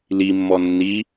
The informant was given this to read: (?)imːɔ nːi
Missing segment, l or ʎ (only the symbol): l